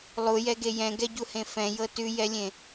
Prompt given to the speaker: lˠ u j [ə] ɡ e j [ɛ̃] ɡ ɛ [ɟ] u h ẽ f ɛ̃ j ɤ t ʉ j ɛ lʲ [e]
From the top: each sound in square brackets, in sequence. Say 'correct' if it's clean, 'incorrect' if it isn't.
incorrect, correct, correct, incorrect

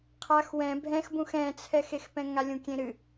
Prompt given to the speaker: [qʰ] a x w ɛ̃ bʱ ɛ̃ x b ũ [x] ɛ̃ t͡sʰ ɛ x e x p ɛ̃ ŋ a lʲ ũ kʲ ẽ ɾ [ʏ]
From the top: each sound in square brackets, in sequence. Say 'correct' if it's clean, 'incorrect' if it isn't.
correct, correct, incorrect

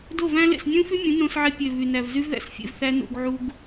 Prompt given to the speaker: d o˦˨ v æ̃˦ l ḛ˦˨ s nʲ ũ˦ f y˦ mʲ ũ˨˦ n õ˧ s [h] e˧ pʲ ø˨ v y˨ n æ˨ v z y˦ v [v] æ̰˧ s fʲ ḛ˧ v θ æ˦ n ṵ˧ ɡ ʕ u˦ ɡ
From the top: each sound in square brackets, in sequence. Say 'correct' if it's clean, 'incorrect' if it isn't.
incorrect, incorrect

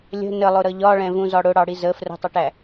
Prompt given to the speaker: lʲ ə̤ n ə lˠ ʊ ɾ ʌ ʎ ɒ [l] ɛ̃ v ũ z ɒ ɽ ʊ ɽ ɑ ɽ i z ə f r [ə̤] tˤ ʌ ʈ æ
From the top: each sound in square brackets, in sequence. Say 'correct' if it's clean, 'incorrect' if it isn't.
incorrect, correct

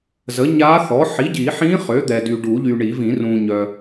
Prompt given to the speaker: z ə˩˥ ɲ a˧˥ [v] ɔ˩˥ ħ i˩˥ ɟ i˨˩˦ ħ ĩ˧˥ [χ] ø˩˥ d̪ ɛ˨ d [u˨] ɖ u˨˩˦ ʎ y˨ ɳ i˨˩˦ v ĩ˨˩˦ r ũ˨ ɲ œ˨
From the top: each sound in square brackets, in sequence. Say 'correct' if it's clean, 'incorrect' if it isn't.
incorrect, correct, incorrect

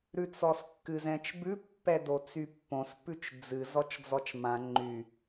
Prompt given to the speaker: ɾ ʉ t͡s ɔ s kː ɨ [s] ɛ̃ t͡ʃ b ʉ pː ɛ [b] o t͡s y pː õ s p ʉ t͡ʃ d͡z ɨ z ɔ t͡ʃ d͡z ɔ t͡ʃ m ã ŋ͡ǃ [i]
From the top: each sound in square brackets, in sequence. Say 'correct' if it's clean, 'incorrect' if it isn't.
incorrect, incorrect, incorrect

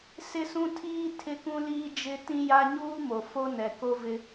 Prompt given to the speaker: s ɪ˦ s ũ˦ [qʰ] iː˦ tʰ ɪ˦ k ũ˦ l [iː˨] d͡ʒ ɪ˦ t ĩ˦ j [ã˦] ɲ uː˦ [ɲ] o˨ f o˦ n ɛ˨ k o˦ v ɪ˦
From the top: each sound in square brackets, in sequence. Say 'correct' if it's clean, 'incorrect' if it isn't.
incorrect, incorrect, incorrect, incorrect

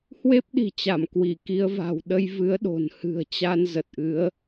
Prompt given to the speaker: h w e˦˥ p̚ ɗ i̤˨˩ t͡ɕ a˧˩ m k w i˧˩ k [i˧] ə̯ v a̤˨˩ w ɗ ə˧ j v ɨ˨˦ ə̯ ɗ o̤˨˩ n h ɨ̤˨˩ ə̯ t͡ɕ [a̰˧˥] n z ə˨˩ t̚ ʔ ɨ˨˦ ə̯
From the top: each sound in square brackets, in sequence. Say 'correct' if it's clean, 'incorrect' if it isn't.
incorrect, incorrect

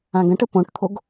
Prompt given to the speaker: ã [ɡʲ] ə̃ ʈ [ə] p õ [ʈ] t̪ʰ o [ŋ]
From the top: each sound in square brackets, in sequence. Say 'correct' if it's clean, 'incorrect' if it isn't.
incorrect, correct, correct, incorrect

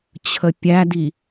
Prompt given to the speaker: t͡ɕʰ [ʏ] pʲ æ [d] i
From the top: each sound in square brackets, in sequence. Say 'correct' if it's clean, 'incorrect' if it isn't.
incorrect, correct

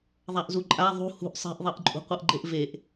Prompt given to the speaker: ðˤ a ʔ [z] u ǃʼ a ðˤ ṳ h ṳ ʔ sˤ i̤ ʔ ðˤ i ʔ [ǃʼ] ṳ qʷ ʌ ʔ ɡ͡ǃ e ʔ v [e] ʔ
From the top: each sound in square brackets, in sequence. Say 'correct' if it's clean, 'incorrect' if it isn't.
correct, correct, correct

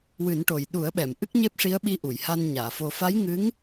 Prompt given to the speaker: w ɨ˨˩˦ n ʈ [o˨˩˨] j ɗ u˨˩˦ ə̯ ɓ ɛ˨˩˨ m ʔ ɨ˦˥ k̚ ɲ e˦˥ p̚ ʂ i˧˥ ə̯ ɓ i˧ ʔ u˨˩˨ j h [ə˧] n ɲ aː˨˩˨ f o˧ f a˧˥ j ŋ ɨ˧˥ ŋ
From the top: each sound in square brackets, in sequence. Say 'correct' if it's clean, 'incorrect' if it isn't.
incorrect, incorrect

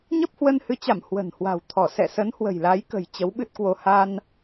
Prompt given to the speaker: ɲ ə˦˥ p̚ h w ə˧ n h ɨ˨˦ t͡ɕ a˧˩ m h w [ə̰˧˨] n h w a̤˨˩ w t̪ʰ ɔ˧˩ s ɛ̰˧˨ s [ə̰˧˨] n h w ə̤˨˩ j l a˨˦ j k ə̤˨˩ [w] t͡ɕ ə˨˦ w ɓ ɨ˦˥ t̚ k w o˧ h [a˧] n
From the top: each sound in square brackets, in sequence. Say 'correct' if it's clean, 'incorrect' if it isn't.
incorrect, incorrect, incorrect, correct

